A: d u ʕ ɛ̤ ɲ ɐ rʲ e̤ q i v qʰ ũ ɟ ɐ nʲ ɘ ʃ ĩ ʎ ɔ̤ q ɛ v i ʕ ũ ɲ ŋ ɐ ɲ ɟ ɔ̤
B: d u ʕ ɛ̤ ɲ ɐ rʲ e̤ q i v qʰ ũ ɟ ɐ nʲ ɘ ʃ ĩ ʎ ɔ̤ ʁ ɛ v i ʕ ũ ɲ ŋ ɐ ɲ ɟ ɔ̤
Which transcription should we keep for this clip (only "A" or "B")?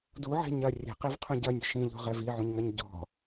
B